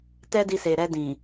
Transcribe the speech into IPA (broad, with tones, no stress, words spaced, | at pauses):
tɛ˦di˧se˨ ɾɛ˧dĩ˨